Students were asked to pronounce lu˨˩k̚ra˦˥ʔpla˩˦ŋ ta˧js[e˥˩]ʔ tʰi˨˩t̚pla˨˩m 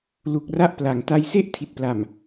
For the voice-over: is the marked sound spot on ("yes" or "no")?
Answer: yes